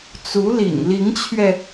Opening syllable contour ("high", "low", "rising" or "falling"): rising